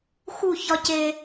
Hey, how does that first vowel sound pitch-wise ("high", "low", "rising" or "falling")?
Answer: falling